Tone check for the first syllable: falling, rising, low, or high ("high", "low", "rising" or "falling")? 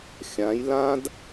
rising